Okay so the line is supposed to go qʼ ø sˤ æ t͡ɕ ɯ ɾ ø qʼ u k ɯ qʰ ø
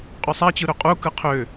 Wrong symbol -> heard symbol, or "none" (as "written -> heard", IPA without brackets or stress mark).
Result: none